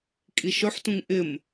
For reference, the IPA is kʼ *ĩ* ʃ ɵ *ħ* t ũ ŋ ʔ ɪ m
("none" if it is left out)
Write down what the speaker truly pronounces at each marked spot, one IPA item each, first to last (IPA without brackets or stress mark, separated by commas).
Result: i, ħ